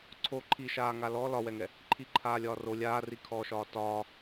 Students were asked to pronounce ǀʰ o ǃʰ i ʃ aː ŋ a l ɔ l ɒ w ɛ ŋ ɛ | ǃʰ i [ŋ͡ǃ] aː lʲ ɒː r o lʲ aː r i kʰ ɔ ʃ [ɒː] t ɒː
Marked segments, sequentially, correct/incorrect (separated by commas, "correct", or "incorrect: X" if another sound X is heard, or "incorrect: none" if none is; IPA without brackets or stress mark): incorrect: ǃʰ, correct